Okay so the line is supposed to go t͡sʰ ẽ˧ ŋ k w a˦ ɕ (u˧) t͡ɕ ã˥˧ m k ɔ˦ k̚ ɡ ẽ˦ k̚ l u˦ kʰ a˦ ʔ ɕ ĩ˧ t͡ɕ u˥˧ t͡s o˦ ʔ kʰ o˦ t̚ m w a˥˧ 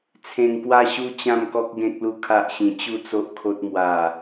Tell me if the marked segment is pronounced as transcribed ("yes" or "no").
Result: no